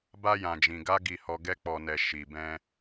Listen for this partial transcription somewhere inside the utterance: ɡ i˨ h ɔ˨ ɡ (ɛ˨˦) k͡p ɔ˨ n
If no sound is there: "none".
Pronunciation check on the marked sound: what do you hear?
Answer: ɛ˧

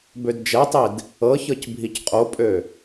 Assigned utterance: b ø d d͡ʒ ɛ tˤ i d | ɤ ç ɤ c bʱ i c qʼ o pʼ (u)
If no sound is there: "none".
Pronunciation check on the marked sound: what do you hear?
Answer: ø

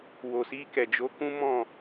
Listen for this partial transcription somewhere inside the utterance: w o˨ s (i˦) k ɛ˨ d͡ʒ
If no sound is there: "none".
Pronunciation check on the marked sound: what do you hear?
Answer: i˧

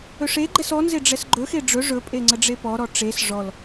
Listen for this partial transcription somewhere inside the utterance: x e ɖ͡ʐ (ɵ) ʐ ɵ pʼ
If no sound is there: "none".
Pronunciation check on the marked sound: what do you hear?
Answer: ɵ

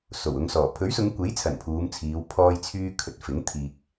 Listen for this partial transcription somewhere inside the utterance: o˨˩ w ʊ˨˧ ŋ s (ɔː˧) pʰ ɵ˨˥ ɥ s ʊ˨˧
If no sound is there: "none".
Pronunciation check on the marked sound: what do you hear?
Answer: ɔː˨˩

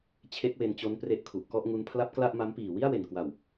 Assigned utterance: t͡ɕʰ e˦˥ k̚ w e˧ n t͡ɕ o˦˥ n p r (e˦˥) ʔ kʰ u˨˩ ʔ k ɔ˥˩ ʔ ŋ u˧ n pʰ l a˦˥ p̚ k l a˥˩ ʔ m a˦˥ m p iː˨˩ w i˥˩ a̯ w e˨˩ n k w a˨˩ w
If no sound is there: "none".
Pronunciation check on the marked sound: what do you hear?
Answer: e˦˥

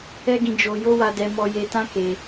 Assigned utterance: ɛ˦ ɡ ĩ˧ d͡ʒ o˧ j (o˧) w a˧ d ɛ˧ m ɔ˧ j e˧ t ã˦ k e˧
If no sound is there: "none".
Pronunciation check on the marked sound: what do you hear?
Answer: o˦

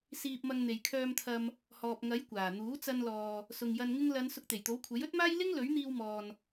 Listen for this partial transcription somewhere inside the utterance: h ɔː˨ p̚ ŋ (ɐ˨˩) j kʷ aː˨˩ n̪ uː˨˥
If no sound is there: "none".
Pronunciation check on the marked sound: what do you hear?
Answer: ɐ˨˥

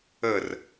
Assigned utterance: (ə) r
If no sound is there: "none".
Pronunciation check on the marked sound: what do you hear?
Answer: ə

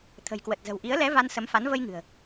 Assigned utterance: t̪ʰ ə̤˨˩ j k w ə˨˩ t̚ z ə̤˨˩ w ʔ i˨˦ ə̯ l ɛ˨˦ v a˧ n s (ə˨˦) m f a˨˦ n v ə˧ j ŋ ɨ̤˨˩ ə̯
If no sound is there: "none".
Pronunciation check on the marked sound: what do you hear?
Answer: ə˨˦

